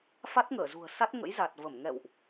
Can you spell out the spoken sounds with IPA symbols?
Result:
f a˦˥ t̚ ŋ əː˧˩ z ṳ˨˩ ə̯ s a˦˥ t̚ ŋ ə̰˧˥ j z a˨˩ t̚ v ə˧˩ m ŋ ɛ̰˧˨ w ʔ

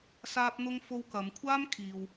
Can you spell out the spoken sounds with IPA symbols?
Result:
s aː˥ p̚ n̪ ʊ˥ ŋ f o˧ w k ɐ˨˧ m kʷʰ aː˥ m kʰ iː˧ w

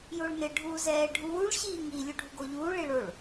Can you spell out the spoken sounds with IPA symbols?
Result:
j o ɭ n ɪ ɖʱ uː z ɛː ɖʱ uː ɭ ɕ iː ŋ i lʲ u ɖʱ u ɡ o ʎ uː ɭ i ɭ o ɭ

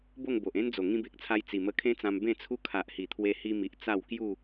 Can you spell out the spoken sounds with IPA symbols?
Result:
b o˥˧ ŋ b o˨ ʔ ẽ˦ n d͡z o˨˩ ŋ ĩ˧ b e˨ k̚ t͡sʰ a˧ j t͡s i˨˩ m ə˧ kʰ ẽ˦ t͡s ã˧ m b ẽ˥˧ t͡sʰ u˦ kʰ a˨ ʔ h i˨˩ t̪ʰ w e˧ h i˧ m i˨ ʔ t͡s a˥˧ w k j u˥˧

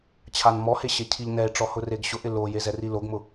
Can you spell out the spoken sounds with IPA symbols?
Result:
t͡ɕʰ a n m ɔ h e ɕ e cʰ i ʎ n ɛ e̯ ʈ͡ʂ ɔ h ʊ r e ɡ ɕ ʊ ʔ ɪ l o j e z ɛ r i l o ɡ m ʊ

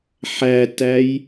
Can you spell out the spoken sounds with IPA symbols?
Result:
ħ æ t æ j

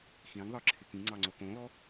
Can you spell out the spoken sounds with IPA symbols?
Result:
x ĩ ŋ ðˤ ə˞ ǁʰ ɪ k ĩ ŋ͡ǀ ɑ ŋ͡ǀ o k õ l ɔ

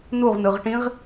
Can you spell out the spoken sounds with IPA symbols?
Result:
n u ʁ n ɯ ʁ ʈ ĩ ʁ

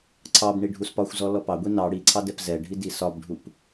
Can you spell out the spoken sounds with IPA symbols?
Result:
ǀʰ ɑ b ɳ i ɖʱ u s p ɒ xʷ z ɔ l ɔ p ɑ ɡʷ i n ɑ ɽ i ǀʰ ɑ d ɛ p z ɛ ɖʱ i d i s ɒ b ɖʱ u p

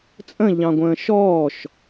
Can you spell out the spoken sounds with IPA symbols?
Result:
t͡sʼ ə̃ ʎ ɑ̃ ɡʷ ə̃ː ʃ ɔː ʃ

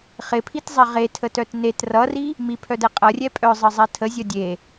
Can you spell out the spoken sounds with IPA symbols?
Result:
χ ɪ pʰ i t zˤ ɛ ʁ e tʰ ə t œ t n e t r ʌ r i | m i pʰ œ d ɛ qʼ ʌ rʲ ɛ pʼ œ zˤ ə zˤ ɛ tʰ ə zʲ ʌ dʲ e

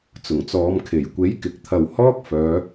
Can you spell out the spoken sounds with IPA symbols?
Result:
t͡s ʊ˨˩ ŋ t͡s ɔː˨˧ m kʰ e˨˩ j kʷ e˨˥ j k ɪ˨ k̚ t̪ʰ ɐ˨ w h ɔː˥ k̚ f œː˨˧

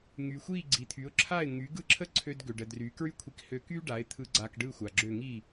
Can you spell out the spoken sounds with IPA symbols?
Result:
ŋ y˩ xʷ i˥˩ ɡ͡ǀ i˩˥ t̪ʰ y˩˥ ʊ̯ ǁʰ a˥˩ ɪ̯ ŋ y˩˥ ɡ ɯ˥˩ ǁʰ ə˥ ǀʰ ø˧ d ɡ ø˩ ɖ ə˩ d r y˩˥ k ɹ y˥ kʷʰ i˧ k h ø˧ k y˥ ɖ a˩˥ ɪ̯ t̪ʰ ɯ˧ ɡ͡ǀ a˧ k ɖ ɯ˥˩ xʷ a˩ ɡ͡ǁ ø˥˩ ŋ i˥˩

